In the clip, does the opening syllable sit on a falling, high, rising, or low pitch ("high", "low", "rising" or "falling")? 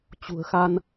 low